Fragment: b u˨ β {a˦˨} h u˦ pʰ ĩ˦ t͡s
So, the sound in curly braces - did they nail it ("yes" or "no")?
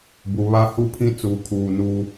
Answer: no